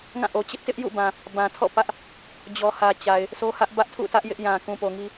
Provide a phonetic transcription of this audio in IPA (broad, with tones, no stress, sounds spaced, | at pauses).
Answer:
ŋ ã˦˨ ʔ o˨ t͡ɕ ɪ˦ ʔ t ɪ˦ ʔ j ṵ˦˨ b ã˨ | b ã˨ tʰ ɔ̰˦˨ p ä˦ ʔ | d͡ʑ ɔ˨ h ä˨ t͡ɕ a˨ ɪ̯ | sʰ o˦ h ä˦ ʔ b ä˦ ʔ tʰ ṵ˦˨ t ä˦ ʔ j ɪ˦ ʔ j ã˨ k ũ˨ p o˨ ŋ i˦